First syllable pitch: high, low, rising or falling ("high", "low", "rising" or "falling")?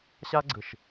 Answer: high